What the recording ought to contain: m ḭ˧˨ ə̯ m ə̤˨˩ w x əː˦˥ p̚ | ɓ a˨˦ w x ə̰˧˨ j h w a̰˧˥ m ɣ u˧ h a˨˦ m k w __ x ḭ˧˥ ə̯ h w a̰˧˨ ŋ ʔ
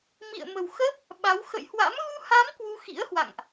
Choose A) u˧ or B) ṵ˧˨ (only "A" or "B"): A